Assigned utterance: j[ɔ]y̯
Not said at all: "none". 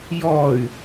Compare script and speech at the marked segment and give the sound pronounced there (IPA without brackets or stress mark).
ɔ